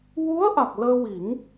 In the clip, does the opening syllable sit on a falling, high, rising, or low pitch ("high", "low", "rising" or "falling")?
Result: rising